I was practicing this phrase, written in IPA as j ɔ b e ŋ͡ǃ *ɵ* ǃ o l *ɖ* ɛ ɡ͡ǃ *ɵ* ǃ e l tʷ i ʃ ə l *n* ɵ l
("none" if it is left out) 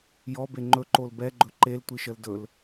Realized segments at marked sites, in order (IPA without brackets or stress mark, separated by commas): ɵ, b, ɵ, d